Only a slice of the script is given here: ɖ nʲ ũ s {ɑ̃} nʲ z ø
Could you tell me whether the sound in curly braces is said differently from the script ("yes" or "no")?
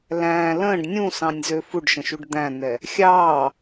no